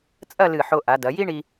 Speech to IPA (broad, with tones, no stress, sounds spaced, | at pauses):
t͡sʼ ɐ˥˧ l ɨ˧˩ ħ o˧ ʔ a˩˧ d ɐ˩˧ j i˥ ɳ i˧